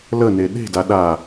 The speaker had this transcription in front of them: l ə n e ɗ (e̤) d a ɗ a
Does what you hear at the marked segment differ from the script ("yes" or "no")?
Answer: no